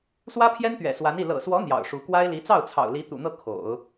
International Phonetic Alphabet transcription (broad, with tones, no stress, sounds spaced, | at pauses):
s w ä˥ pʰ j ɛ˥ n t̪ ɥ ɛ̰˨˩ s w a˧˥ n i˥˩ l ɤ̰˨˩ s w ɔ˧˥ n̪ j ɑ̰˨˩ ʊ̯ ʂ u˧˥ k w a˥ ɪ̯ l i˧˥ t͡s ɑ˥˩ ʊ̯ t͡sʰ ɑ̰˨˩ ʊ̯ l i˧˥ t̪ ṵ˨˩ n̪ ɤ˥˩ kʰ o̰˨˩˦ ʊ̯